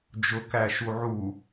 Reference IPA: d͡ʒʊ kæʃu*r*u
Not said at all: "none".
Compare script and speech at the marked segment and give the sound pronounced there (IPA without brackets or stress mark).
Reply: ʕ